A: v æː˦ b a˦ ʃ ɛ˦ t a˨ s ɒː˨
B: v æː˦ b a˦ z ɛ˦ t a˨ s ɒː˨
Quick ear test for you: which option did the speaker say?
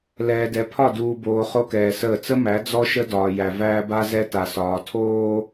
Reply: B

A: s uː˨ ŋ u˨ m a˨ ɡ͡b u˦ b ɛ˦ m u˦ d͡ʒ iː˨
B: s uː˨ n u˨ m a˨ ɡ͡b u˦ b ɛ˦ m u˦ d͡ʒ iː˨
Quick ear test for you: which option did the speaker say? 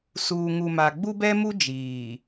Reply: A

